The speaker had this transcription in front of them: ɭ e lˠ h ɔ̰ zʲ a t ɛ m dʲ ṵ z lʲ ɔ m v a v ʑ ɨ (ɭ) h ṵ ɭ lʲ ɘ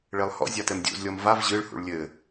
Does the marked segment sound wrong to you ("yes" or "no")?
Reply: no